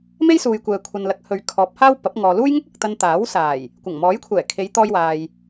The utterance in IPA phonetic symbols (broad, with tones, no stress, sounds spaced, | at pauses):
m e˥ j s uː˨ j kʷ ɛː˨ kʷʰ ɐ˨ n l ɐ˨˥ k̚ h ɵ˨ ɥ kʰ ɔː˨˥ p̚ h aː˥ w p ɐ˨˥ p̚ ŋ ɔː˨ l uː˥ j ŋ ʊ˥ k̚ ɐ˨ k̚ t̪ ɐ˧ n t̪ aː˨˥ w s aː˨˩ j | kʷ ɐ˨˩ ŋ m ɔː˨˥ j kʷʰ ɛː˨˩ kʰ e˨˧ j t̪ ɔː˧ j w aː˨ j